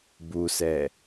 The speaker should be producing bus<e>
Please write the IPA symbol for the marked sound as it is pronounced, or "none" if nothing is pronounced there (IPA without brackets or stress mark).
ɛ